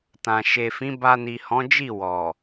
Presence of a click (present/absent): absent